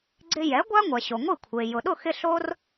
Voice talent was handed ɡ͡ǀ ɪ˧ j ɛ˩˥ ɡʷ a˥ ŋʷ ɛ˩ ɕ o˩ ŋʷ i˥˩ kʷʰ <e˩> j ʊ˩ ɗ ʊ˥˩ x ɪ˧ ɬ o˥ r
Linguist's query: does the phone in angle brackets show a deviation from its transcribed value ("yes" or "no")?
no